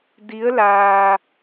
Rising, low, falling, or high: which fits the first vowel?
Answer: rising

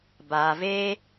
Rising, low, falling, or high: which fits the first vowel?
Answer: low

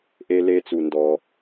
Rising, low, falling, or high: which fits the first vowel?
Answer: high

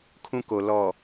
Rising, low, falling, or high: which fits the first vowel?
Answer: high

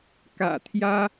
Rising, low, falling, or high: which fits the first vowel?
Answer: low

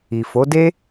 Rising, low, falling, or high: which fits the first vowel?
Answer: low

